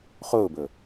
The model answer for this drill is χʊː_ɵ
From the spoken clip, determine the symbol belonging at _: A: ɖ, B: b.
B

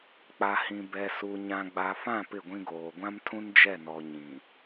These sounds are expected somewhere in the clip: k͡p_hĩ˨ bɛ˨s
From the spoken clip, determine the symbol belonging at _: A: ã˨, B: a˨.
B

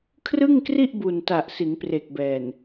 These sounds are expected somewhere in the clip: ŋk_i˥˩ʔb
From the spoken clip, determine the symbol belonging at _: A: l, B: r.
B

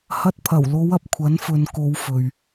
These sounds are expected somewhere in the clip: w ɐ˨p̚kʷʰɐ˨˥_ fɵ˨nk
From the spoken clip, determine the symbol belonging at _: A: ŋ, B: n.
B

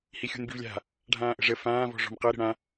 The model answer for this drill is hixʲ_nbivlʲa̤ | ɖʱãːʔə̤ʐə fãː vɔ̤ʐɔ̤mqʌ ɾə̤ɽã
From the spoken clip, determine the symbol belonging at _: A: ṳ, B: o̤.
A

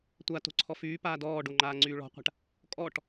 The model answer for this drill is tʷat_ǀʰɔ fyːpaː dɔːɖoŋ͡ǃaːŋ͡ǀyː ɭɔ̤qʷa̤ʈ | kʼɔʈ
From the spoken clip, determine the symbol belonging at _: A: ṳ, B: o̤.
B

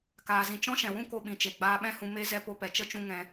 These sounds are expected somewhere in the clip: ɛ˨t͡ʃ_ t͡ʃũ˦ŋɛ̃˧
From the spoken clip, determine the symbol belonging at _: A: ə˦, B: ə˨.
A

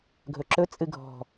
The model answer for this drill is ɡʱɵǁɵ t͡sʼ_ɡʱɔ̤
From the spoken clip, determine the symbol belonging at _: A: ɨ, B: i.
A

